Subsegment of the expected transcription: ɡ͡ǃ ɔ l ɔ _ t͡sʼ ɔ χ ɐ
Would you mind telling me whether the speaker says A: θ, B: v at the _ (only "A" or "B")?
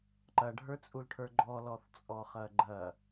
A